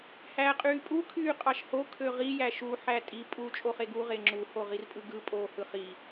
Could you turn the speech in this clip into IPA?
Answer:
h æː qʼ yː pʼ u kʰ yː qʼ ɑ ʃ h o kʰ ø ʁ i j æ ʃ u ħ æ tʼ i pʼ u t͡ʃʼ o χ e ɡ u ʁ e ŋ͡ǁ u h o ʁ i r pʼ ɯ ɡ ɯ pʼ oː h ɯ χ i

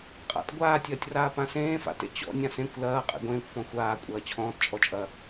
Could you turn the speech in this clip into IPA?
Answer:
qʼ a̰ t ɡʷ aː tʲ ɐː tʲ r aː p ã s ẽː f a̰ t ḛ t͡ɕ ɔ̰ nʲ ã s ẽ kʷ l ɐː qʼ ḛ ɡʷ ẽː kʷ f ɔ̃ xʷ aː kʷʼ ɐː t͡ɕʰ ɔ̃ː t t͡ʃʼ ɔ t͡ʃʼ ɐ

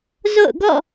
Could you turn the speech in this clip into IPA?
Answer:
z o̰˦˨ ʊ̯ ɡ ɔ̰˦˨

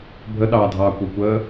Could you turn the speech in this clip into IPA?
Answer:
bʱ ə ɗ ɑː dʱ ɑː kʷ ə˞ kʷ əː

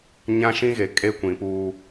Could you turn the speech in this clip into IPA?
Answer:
ɲ ã˦ ʃ ĩ˦ ɣ e˨ kʼ e˦ kʷ ĩ˨ p uː˦

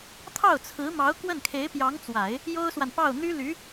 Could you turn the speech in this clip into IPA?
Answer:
t̪ʰ ɑ˥˩ ʊ̯ t͡sʰ ɹ̩˧˥ m ɑ˧˥ ʊ̯ k w ə˥˩ n kʰ e˧˥ ɪ̯ p j ɑ˧˥ ŋ t͡s w a˨˩˦ ɪ̯ | j o˥ ʊ̯ s w a˨ n p ɑ˥˩ ʊ̯ n̪ y˥ l y˧˥

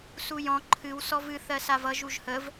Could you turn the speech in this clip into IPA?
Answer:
s u j ɔ̃ ǃʰ ɨ w s ɔ v ɨ θ ɜ s a v ʌ ʒ u ʒ h ə v

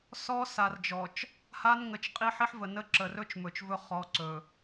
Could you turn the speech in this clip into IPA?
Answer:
s ɔ˦ s a˨ r d͡ʒ ɔ˨ t͡ʃ | h a˦ n ŋ ə˨ t͡ʃ qʼ i˦ ħ i˦ ħ v ə˨ n ə˦ ǁ ə˨ r ɵ˦ t͡ʃ m ɵ˨ t͡ʃ v ɵ˦ χ ɔ˨˦ ǀ ɵ˨

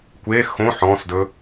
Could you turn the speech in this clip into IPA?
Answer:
kʷ e x õ ħ ɔ̃ s d ɵ

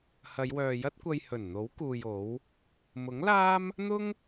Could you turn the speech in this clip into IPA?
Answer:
h ɐ˨˧ j w œː˨ j ɐ˥ t̚ kʷ ɐ˧ j h ɵ˨˩ n n̪ o˨˥ w k uː˨ j o˨˥ w | m ʊ˨˥ ŋ l aː˥ m | n̪ ʊ˥ ŋ

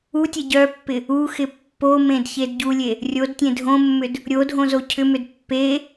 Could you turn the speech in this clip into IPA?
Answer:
u tʲ ɛ ɟ œ pː ɪ | u x ɪ pː o m ẽ d ç e d ɟ u lʲ e | rʲ o d tʲ ẽ dʱ õ mː ʏ d | ɾʲ o dʱ õ z o cʰ ʏ m ʏ d pː e

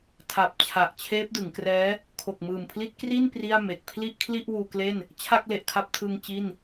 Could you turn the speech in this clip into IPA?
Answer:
tʰ a˨˩ p̚ t͡ɕʰ a˨˩ ʔ t͡ɕʰ eː˦˥ p̚ d ɯ˩˦ ŋ k r ɛː˦˥ | kʰ o˨˩ k̚ m ɯː˨˩ m pʰ l i˦˥ t̚ k r i˥˩ n p r i˥˩ a̯ m e˨˩ k̚ pʰ l i˥˩ ʔ kʰ l i˥˩ ʔ w uː˧ k l e˥˩ n | t͡ɕʰ a˥˩ k̚ l e˨˩ ʔ kʰ a˦˥ p̚ tʰ ɯ˧ ŋ t͡ɕ i˥˩ n

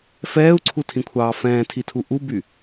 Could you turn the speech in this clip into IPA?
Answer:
f ɛː u̯ ǀʰ u tʰ ĩ kʷʰ ɑː f ɛ̃ː tʰ i tʰ u ʔ u b y

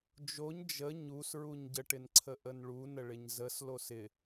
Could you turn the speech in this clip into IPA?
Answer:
d͡ʒ o ɲ d͡ʒ ə ɲ u s ɹ u ɲ ɟ ə ʈ ɪ n ǀʰ ə ʔ ə n ɭ u n ə ɭ ɪ ɲ z ə s l o s ɪ

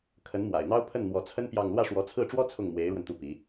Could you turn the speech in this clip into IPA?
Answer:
kʰ ə˧˥ n m w a̰˨˩ ɪ̯ n̪ ɑ˥ ʊ̯ pʰ ə˥˩ n n̪ w ɔ˧˥ t͡sʰ ə˥ n p j ɑ˥˧ ŋ l w ä˥˩ ʂ w ɔ˧˥ t͡sʰ ɹ̩˥˩ ʈ͡ʂ w ɔ˥ t͡sʰ ʊ˥˩ ŋ m w e˧˥ ɪ̯ ɻ w ə˧ n t̪ u˥˩ p i˧˥

